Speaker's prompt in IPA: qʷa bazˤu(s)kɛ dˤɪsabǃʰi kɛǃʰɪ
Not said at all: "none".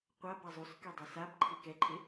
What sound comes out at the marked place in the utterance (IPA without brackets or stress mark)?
s